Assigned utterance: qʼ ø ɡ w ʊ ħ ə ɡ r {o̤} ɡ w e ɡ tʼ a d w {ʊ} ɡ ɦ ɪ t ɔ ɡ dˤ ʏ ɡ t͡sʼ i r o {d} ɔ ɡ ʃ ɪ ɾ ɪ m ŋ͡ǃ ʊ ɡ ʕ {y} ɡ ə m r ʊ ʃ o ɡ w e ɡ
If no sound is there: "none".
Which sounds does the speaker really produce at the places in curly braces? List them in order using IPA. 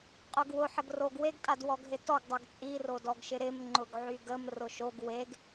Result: o, ɔ, d, y

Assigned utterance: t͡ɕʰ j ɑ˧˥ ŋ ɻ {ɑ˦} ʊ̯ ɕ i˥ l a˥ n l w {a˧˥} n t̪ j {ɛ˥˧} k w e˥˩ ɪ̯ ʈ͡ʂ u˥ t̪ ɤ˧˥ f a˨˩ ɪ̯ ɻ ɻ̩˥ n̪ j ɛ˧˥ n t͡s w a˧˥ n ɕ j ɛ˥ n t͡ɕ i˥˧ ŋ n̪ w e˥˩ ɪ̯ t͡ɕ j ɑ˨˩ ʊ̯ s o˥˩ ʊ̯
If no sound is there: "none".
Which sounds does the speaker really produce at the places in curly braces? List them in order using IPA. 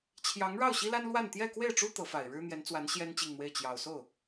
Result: ɑ˥˩, a˥˧, ɛ˥˧

